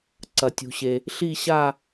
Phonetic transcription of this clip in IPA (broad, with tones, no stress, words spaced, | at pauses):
ǀɐ˩tʲṳ˩ɕe˩ | ɬi˦˨ɕa˦˨